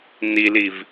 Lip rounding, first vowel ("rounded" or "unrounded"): unrounded